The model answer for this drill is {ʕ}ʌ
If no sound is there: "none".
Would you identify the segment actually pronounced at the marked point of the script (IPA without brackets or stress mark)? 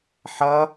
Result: ħ